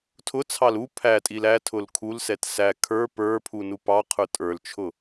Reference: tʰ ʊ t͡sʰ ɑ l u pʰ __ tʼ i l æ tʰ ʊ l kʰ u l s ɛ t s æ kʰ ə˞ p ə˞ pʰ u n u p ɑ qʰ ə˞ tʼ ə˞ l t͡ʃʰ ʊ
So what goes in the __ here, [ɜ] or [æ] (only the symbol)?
æ